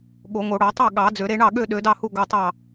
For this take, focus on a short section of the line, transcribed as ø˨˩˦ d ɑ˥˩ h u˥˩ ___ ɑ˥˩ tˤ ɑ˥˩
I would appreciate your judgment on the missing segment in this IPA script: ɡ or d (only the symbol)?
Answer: ɡ